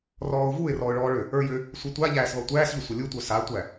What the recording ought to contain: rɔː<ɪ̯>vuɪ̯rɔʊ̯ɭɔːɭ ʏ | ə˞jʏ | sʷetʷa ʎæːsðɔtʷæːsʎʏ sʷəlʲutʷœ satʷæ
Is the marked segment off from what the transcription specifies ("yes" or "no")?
yes